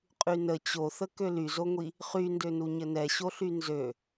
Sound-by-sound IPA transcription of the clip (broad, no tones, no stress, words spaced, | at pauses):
qʼynə t͡ɕoθə kølyzoŋʷi | χyndønu ɲənɛɕoɬy nzø